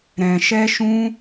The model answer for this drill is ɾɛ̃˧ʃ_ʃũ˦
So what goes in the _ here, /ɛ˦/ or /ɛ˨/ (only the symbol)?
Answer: ɛ˦